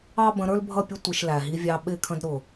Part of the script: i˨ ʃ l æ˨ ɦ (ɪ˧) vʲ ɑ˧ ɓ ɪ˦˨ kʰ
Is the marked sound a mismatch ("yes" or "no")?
yes